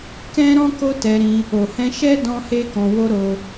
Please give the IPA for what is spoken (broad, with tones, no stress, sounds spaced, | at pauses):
k ɛ̃˦ ɾ ɔ̃˦ k o˦ t ɛ˧ ɾ ĩ˧ | o˨ h ɛ̃˧ ʃ ɛ˦ d ɔ̃˦ h e˦ k ɔ̃˧ w o˦ ɾ o˦